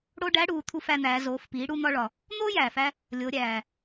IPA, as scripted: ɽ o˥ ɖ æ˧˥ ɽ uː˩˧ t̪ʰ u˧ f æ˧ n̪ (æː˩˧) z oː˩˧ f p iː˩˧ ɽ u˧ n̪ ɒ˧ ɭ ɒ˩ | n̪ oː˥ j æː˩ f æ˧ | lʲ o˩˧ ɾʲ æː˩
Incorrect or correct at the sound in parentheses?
correct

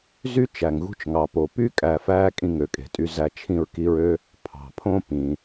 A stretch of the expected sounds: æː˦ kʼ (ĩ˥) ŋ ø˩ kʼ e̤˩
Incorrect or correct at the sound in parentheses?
incorrect: ĩ˦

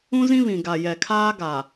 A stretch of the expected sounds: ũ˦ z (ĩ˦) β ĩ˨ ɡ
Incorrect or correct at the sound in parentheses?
correct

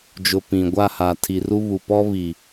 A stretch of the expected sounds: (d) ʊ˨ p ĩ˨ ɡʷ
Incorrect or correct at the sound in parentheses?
incorrect: d͡ʒ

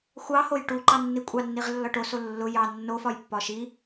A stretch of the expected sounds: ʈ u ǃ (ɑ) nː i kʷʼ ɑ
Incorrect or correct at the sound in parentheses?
correct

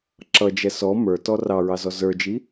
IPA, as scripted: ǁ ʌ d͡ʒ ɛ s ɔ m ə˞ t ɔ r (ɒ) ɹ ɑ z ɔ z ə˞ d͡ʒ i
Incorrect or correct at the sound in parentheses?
incorrect: ɑ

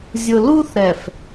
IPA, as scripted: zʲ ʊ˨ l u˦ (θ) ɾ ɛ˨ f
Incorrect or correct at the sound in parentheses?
correct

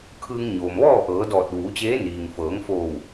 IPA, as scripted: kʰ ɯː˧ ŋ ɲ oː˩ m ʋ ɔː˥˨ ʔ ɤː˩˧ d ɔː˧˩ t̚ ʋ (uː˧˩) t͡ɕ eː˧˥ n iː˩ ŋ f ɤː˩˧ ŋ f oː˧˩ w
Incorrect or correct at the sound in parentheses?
incorrect: uː˩˧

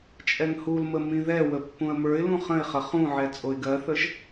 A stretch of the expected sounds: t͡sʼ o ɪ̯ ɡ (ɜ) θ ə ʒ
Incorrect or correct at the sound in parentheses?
correct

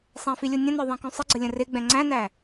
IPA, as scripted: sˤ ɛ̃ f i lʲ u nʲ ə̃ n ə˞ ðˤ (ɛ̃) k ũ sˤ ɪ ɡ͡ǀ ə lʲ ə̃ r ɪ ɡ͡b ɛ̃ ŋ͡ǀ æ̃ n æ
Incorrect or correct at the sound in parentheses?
correct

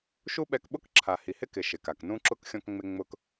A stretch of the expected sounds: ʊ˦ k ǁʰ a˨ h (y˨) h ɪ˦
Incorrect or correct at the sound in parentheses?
incorrect: i˨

